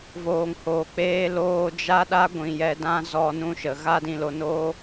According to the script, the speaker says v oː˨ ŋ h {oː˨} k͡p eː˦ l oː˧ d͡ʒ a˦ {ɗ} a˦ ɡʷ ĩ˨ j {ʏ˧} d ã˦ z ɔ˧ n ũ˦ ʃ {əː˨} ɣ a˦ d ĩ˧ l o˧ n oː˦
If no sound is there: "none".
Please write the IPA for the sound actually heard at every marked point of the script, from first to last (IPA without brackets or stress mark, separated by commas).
oː˨, ɗ, ɛ˧, ə˨